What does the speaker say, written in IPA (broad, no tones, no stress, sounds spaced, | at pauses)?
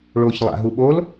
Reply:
ɭ o ç lˠ a̰ ɦ u ɓ o l